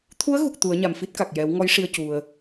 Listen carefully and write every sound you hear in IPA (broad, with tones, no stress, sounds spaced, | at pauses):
t̪ʰ u˧˥ ə̯ ɣ u˨˩ k̚ t̪ u˨˩˦ ə̯ ɲ a˨˩ m f i˦˥ t̚ k a˨˩ k̚ j ɛ˨˩˦ w ŋ ɔ˧˥ j ʂ i˧ ə̯ c u˨˩ ə̯